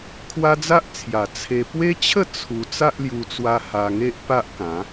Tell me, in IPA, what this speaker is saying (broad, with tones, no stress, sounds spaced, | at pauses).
kʰ w a˦ d͡z a˦ ʔ t͡sʰ j a˨˩ t͡sʰ e˧ p w e˦ t͡ɕʰ ə˥˧ t͡sʰ u˧ t͡s a˦ ʔ l j u˧ t͡s w a˧ h a˧ ŋ e˦ ʔ p a˦ ʔ k ã˨˦